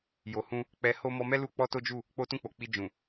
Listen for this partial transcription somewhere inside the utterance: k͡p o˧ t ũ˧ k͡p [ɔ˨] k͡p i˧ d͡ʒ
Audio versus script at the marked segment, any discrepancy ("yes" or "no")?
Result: yes